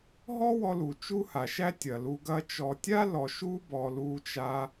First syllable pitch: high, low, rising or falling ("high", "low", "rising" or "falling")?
high